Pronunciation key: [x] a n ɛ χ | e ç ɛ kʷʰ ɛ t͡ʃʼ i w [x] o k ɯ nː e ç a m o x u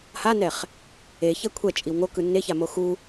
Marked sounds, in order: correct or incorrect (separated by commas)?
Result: incorrect, incorrect